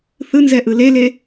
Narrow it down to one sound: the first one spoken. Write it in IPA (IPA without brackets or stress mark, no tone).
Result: θ